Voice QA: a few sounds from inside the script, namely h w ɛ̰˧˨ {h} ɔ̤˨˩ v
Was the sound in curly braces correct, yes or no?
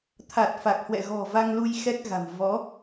no